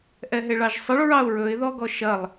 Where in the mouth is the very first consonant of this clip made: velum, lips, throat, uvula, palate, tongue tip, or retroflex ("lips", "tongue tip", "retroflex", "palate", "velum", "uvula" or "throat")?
throat